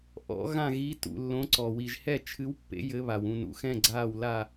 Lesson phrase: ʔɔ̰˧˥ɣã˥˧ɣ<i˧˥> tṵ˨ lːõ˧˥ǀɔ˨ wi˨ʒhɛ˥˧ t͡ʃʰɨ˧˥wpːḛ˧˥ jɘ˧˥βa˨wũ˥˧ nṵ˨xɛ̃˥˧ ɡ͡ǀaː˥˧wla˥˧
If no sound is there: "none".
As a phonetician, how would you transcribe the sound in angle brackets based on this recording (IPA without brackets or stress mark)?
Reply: i˧˥